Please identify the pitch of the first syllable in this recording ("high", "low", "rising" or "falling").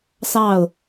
falling